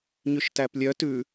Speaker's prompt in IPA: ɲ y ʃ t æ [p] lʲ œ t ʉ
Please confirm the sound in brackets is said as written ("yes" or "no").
yes